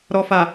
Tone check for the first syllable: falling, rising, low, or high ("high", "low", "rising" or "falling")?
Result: low